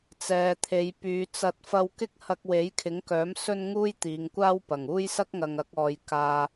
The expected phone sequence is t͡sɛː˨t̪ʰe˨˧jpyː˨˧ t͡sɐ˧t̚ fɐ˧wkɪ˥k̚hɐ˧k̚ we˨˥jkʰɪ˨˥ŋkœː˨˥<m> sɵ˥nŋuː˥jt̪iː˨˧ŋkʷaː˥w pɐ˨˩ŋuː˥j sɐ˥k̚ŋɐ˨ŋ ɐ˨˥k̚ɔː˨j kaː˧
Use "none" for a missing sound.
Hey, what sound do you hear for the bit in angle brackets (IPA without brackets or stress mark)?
m